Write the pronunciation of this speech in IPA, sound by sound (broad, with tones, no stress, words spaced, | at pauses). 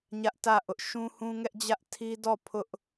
ɲä˦ʔtä˦˨ʔʊ˦ʔ ʃũ˦hũ˦ŋɛ˦ʔd͡ʑä˦ʔ tʰi˦dɔ˦˨ pʰʊ˦ʔ